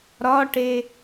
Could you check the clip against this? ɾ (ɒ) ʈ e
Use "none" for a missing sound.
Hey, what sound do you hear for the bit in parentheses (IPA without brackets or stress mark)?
ɒ